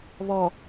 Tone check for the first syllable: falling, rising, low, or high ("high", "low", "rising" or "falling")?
low